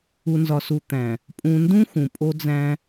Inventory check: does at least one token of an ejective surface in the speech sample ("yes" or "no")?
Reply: yes